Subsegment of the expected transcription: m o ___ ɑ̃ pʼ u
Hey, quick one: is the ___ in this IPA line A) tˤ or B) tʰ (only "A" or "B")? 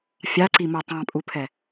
A